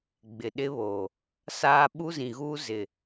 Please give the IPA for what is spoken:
ɡ͡bɪ˨ɗɪ˦βoː˨ | saː˦ ɓu˦zĩ˨ɣuː˦ zɪ˨

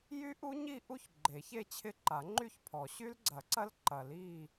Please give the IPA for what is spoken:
jy˦˥ʔu˦˥ ɲi˥˧ʔu˥˧ç ɡ͡ǃe˨˩˦çe˥˧t͡ɕʰɪ˦˥ ǃa˨˩˦ŋ͡ǃy˥˧çpʰɔ˨˩˦ ɕy˦˥lɡ͡ǀɐ˨˩˦ǀɐ˦˥l ǃɐ˨˩˦li˥˧

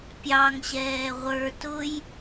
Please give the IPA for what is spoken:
pʲɑŋɕɛː ʁʷə˞ tʊj

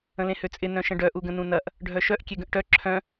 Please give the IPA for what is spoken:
ə̃lẽhøt͡sʼɪ nœ̃ʃə̃ɖœ ʔuɡə̃nũnɐʔ | ɖʱœʃœʔ kʲeɡə̃ʔʈœ ǁʰœ̃

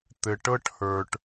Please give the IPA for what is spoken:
t̪ɘ˨ʈɤ˦ʈhə˞˨ʈ

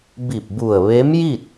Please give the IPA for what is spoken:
bi˧˩p̚bu˧˩ə̯ʋe˧˥mji˥˨t̚

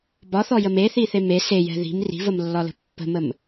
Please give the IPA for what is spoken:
bɒθɔjəm eθiθe me sejɛ̤ ði̤m ri̤vəmlːɒlə̤ pːə̤məm

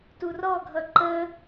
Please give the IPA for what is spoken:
turɔɡʱʌ ǃə

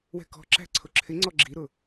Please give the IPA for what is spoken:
wɛ̤kɔ̤ǁæ̤ ǀʰʊǁʰɪ ŋ͡ǀɔɡ͡ǁiɾʊ

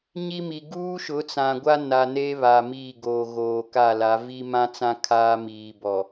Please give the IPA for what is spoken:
ɲi˦mi˨ ɡuː˦ʃʊ˨˦ t͡sã˨ɡʷa˦na˨ neː˦βa˨ miː˦˨ɡo˨ ɣoː˨ka˦˨la˨˦ vi˦mã˦t͡sã˦ kʰaː˦miː˨ bɔ˨

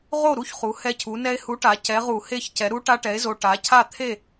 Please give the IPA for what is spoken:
ʁo˥˨ɾu˥˨çχu˩˧ hɛ˧cʰu˩˧ nɛ˧e̯hu˨˥ʈa˩˧ cɛ˨˥ʁu˧˩˧he˥˨çcɛ˨˥ ɾu˦˥ʈa˦˥ʈɛ˨˥e̯zo˧ ʈa˨˥cʰa˥˨ t̪ʰe˥˨

